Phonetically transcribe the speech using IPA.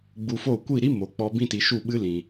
ɡ͡b u˧ f o˦˨ kʷ i˦˨ ɾ i˦ m o˨ k͡p ɔ˧ b ĩ˦ t i˧ ʃ u˦˨ ɓ ɨ˦ l ĩ˨

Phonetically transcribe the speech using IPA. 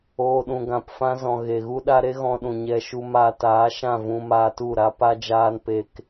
oː˨ ɗ ũ˨ ɡ ã˨ p f ã˧ z ɔ̃˨ ɣ e˨ ɣ u˦ ɗ a˦ ɾ e˦ ɣ ɔ̃˧ ɗ ũ˨ ɲ ɛ˧ ʃ u˧ m aː˧ t aː˨˦ ʃ ã˦˨ v ũ˧ m aː˧ t u˦˨ ɾ a˦ p a˦ d͡ʒ aː˦ n p e˦ k

